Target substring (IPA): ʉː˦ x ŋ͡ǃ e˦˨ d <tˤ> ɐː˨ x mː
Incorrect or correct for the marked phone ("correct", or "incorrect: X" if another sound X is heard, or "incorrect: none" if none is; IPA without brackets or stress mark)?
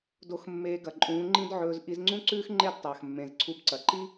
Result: correct